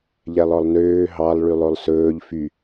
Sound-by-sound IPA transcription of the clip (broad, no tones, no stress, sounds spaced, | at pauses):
ʎ ɛ lˠ ɔ lˠ n øː ɦ ɑ lˠ ɭ y lˠ o lˠ s ɵː ʎ f y